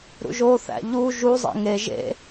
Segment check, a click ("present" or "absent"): absent